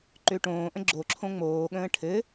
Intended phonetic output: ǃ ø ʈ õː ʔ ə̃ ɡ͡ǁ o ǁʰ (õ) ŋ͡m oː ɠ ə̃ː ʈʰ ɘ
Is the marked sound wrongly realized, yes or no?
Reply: no